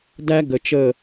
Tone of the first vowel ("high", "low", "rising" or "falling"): high